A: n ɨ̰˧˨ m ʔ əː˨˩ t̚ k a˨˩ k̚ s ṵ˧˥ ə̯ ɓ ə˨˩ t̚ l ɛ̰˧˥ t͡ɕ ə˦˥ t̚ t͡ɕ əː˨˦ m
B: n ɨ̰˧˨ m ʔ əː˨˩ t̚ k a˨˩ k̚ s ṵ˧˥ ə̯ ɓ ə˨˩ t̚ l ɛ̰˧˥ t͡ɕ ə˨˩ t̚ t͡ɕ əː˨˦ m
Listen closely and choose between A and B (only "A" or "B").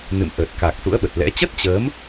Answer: A